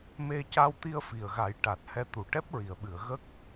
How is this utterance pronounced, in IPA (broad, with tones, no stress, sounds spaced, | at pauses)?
m e˧ c a˧ w t̪ i˧ ə̯ f i˨˩ ə̯ ɣ a˨˩˦ j ʈ a˨˩ t̚ h ɛ˧ t̪ u˨˩ ʈ ɛ˦˥ p̚ ɹ i˨˩˨ ə̯ ɓ ɨ˨˩˨ ə̯ ɣ ə˦˥ k̚